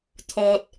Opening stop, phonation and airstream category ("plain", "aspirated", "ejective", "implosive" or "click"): aspirated